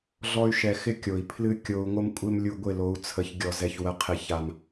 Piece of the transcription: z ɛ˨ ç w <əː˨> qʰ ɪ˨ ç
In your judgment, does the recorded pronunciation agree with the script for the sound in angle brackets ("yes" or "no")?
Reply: no